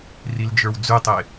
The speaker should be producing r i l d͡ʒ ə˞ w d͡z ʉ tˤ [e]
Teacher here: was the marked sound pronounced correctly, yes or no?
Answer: yes